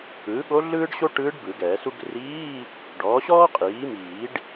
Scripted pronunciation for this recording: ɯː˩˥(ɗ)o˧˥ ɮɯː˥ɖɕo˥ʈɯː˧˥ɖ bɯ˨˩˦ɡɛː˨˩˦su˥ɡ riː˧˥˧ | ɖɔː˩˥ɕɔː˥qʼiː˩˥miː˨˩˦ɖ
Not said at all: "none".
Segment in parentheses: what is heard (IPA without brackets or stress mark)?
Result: ɠ